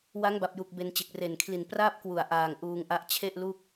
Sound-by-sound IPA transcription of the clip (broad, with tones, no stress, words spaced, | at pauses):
wa˦˥ŋba˨˩p̚ju˨˩k̚ be˧nt͡ɕe˨˩k̚ re˨˩nkʰli˨˩n praː˥˩p̚kwu˨˩a̯ ʔaː˨˩ŋ ʔuː˧ŋʔa˦˥ʔ t͡ɕʰe˥˩ʔ lu˥˩k̚